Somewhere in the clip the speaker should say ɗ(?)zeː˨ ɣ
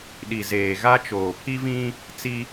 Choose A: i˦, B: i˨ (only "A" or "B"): B